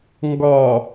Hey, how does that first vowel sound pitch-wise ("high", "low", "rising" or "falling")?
low